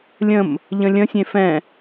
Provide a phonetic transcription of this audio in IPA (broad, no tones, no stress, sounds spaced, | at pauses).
lʲ ə̃ m | ʎ ə̃ lʲ ə̃ sʲ ẽ f ɛ̃